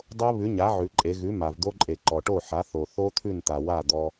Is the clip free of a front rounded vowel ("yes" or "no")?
yes